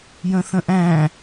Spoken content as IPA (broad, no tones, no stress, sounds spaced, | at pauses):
j ə̃ θ ə̃ ʔ æ̃